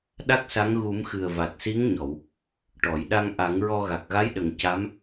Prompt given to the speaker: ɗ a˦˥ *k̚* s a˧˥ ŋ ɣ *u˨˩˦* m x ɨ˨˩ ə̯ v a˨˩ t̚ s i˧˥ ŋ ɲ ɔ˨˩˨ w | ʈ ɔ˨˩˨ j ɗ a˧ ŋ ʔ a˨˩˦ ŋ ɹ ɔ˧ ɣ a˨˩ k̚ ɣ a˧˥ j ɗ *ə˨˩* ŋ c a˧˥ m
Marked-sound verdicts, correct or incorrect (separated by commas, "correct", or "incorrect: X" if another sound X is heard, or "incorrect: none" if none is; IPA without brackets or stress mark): correct, correct, correct